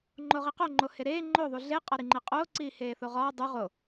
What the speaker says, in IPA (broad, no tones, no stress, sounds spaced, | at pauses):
ŋ͡ǃ o ʁ i q o ŋ͡ǃ o h e ɾ eː ŋ͡ǃ o ðˤ u ɮ e qʼ ɒ ɾ i ŋ͡ǃ e qʼ oː ǀ iː h eː θ o ʁ ɒː dˤ u ʁ o